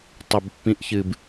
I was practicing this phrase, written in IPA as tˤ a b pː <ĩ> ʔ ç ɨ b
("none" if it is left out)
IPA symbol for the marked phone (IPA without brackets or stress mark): ĩ